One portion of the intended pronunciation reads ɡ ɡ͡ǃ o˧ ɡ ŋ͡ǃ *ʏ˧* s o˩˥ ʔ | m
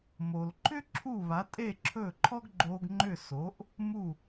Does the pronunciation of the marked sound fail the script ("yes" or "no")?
yes